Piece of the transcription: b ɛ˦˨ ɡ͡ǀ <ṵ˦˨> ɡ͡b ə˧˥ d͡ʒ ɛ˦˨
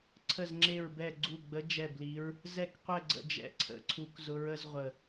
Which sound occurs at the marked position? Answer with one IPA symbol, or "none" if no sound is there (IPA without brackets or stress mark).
u˦˨